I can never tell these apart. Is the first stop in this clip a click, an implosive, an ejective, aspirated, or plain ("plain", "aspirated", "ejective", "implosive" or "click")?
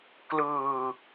plain